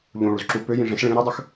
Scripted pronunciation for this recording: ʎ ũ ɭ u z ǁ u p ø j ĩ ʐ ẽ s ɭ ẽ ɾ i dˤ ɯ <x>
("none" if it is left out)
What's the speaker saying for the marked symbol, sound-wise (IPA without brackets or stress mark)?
x